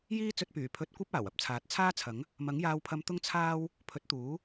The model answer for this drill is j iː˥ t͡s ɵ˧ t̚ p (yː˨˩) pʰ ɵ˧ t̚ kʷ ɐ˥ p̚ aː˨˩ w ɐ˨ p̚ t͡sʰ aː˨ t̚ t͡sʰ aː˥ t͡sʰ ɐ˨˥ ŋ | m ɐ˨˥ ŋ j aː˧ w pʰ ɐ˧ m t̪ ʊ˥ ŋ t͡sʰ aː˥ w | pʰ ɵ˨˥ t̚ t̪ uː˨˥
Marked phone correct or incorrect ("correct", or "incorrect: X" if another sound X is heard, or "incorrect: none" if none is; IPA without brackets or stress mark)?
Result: correct